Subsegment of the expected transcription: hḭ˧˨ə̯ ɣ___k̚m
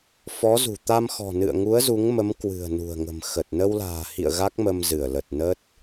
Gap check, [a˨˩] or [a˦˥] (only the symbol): a˦˥